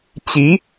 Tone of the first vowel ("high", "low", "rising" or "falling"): rising